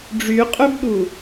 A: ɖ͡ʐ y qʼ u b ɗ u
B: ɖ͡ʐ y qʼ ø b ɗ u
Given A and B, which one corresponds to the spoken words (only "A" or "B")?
B